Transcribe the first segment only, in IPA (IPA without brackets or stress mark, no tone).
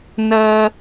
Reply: n